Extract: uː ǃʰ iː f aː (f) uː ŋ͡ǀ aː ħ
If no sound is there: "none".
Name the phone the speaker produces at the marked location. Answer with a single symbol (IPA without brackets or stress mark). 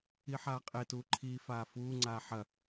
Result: f